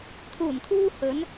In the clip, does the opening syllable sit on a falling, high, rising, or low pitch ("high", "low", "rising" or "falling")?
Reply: low